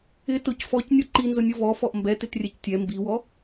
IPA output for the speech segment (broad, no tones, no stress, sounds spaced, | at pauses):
ɪ t ʊ c f ɔ c nʲ ɔ ǃ i n z ʊ nʲ ʊ v ɔ f ɔ ʔ m b ɛ t ɪ t rʲ ɛ c tʲ ɛ m b i w ɔ